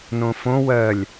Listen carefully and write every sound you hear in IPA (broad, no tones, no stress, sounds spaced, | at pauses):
n õ f õ w ɜ lʲ